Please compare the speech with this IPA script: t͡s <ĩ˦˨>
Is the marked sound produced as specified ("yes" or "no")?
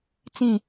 yes